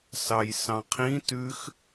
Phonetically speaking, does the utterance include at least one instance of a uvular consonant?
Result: yes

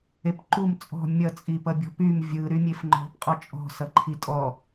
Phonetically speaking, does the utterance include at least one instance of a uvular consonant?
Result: yes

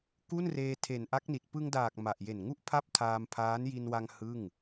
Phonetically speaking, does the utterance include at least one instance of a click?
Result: no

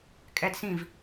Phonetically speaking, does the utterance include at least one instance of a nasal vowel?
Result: yes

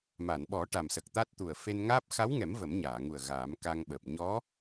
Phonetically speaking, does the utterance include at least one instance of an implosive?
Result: yes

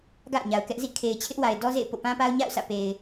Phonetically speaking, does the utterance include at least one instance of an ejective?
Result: no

